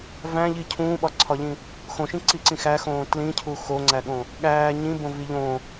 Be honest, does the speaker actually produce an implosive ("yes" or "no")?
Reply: yes